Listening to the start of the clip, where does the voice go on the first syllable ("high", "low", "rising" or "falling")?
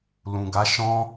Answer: low